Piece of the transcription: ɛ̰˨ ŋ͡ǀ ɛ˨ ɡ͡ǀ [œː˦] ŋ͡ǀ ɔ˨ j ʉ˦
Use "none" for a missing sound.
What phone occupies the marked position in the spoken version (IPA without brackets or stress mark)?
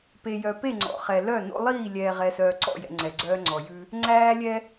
œː˦